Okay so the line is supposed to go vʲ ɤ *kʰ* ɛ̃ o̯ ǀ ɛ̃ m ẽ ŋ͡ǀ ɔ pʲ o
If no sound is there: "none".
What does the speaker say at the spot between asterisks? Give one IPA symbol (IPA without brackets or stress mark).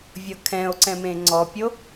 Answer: kʰ